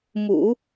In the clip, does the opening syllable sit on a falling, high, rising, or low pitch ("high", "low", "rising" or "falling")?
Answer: low